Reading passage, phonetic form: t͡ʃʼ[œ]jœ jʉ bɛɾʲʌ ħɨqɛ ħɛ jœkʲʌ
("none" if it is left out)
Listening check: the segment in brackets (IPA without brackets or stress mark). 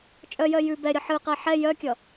œ